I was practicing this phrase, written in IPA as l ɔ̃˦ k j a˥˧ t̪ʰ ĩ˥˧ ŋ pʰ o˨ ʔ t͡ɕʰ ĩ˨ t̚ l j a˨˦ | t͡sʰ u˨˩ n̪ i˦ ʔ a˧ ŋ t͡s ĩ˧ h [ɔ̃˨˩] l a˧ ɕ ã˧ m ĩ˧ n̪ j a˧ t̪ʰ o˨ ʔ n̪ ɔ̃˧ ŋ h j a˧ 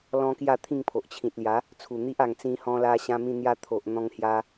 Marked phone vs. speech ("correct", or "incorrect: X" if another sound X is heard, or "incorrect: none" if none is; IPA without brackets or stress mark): incorrect: ɔ̃˧